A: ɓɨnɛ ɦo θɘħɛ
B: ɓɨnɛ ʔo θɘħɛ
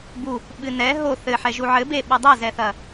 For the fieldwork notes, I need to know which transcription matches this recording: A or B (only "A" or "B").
A